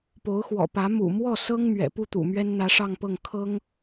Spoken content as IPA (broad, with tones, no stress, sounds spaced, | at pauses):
p o˧˥ ʊ̯ x w ɔ̰˨˩ p ä˧˥ m ṵ˨˩ m w ɔ˥˩ s ɤ˥ ŋ m ɥ ɛ̰˨˩ p u˥˩ t̪ ṵ˨˩ m ɥ ɛ˥ n n̪ ä˧˥ ʂ ɑ˥˧ ŋ p ɤ˥˩ ŋ kʰ ɤ˥ ŋ